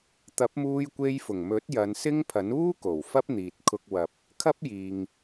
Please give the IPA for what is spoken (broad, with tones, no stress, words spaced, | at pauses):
t̪ɐ˨˥p̚muː˧j kʷe˧jfʊ˨˩ŋmɵ˨˥t̚ jɐ˨˧nsɪ˥ŋpʰɐ˨˥n uː˥ko˨˩w fɐ˥p̚n̪iː˨t̚ kʰʊ˧k̚wɐ˨p̚ | kʰɐ˥p̚ jiː˨ŋ